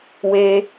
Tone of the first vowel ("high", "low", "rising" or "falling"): high